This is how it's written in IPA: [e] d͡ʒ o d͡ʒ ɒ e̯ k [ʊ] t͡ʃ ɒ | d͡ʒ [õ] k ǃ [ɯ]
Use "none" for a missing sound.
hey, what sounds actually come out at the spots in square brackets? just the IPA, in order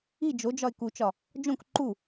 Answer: i, u, õ, u

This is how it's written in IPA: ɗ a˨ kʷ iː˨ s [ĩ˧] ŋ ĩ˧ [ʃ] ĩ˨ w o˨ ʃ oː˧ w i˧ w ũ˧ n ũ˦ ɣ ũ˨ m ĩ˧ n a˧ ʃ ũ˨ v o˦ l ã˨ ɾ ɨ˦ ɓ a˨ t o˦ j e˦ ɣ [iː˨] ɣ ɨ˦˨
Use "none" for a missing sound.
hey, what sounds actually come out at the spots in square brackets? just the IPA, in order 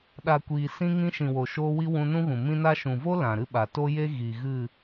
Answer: ĩ˧, ʃ, i˨

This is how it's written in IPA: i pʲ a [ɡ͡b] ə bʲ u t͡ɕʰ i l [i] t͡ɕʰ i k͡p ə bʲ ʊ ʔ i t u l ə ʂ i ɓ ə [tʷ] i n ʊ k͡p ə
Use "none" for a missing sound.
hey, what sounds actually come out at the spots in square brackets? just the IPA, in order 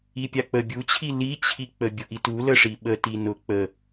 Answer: k͡p, i, t

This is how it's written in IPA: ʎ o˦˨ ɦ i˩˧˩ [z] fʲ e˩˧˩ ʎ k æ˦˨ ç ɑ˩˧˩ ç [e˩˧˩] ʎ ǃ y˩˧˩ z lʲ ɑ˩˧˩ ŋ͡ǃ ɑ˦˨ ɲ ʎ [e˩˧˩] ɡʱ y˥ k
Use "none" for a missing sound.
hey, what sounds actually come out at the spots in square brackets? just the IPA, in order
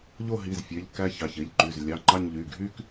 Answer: z, e˩˧˩, y˩˧˩

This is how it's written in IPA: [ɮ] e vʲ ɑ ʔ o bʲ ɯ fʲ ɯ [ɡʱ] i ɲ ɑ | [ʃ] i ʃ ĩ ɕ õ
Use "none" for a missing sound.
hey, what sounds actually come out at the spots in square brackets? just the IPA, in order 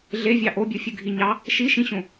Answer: ɮ, ɡʱ, ʃ

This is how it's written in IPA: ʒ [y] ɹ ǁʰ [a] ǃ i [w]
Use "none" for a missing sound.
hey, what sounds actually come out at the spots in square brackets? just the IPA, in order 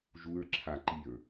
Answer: u, a, ɹ

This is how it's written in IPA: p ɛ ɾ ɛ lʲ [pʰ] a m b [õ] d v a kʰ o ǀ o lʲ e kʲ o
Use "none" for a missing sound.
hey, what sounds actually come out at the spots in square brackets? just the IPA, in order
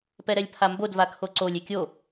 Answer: pʰ, o

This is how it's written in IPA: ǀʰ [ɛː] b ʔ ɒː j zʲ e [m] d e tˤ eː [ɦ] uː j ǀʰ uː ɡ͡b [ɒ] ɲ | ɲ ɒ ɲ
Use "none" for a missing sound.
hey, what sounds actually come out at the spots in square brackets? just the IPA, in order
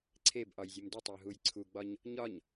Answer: eː, m, ɦ, ɒ

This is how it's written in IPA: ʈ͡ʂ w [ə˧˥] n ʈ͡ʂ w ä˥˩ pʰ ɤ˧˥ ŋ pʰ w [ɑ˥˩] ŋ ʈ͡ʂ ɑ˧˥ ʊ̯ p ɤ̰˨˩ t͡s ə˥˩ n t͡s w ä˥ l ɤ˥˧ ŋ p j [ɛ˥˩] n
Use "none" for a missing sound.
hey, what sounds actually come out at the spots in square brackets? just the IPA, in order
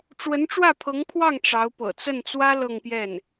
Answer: ə˧˥, ɑ˥˩, ɛ˥˩

